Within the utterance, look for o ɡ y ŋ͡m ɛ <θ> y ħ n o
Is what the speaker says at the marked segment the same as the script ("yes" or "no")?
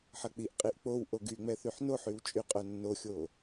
yes